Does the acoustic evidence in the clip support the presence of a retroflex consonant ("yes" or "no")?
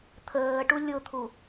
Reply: yes